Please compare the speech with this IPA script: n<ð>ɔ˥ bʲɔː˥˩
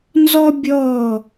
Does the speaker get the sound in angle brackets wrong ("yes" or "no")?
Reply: yes